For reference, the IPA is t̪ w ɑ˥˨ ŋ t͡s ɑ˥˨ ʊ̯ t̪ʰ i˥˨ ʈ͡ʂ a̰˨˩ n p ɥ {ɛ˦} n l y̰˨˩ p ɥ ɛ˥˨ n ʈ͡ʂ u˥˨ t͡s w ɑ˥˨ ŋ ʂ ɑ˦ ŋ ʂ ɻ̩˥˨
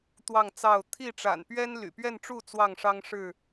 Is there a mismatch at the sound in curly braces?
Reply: no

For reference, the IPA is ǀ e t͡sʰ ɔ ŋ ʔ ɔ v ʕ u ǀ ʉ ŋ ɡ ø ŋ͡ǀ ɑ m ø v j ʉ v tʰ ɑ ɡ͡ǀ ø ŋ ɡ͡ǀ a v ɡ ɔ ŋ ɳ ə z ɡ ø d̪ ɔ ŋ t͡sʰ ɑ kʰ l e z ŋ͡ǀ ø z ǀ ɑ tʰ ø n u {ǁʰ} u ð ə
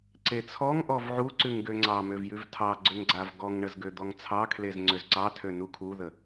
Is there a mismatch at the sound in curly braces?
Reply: yes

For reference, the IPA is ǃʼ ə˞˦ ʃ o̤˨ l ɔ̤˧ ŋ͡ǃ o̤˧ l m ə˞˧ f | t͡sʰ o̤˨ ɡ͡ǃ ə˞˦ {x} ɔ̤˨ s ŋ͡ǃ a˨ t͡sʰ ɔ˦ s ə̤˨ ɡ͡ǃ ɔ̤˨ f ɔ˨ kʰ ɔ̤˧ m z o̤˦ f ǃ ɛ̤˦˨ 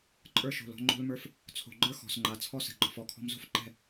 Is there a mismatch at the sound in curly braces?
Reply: no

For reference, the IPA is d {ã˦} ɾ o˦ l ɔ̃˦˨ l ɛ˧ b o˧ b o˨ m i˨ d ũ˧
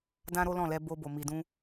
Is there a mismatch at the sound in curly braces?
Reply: no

